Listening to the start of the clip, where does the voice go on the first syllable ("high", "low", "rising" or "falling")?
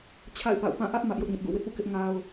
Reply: falling